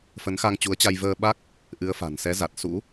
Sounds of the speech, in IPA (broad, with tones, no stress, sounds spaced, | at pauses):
f ə˨˦ n x a˧ ŋ t͡ɕ u˨˦ ə̯ t͡ɕ a˧ j v əː˧ ɓ a˦˥ k̚ | ʔ ɨ˨˦ ə̯ f a̤˨˩ n s ɛ˨˦ z a˨˩ t̚ s ṵ˧˥